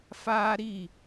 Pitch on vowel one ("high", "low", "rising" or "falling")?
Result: high